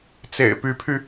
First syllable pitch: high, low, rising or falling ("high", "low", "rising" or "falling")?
low